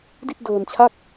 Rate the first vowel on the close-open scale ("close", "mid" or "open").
close